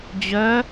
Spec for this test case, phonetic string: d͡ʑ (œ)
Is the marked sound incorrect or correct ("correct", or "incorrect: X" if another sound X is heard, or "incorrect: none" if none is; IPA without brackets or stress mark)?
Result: correct